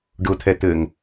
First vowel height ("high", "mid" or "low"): high